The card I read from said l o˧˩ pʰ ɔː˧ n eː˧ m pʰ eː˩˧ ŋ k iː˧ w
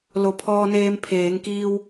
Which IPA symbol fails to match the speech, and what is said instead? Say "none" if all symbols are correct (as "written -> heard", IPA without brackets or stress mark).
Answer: none